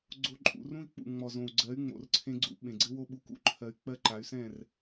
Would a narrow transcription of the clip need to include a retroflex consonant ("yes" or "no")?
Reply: no